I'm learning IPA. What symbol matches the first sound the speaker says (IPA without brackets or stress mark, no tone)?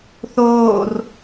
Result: θ